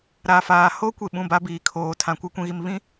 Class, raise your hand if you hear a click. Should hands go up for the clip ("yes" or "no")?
no